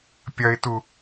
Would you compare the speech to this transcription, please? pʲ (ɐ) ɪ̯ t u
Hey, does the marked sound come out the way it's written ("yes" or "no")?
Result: yes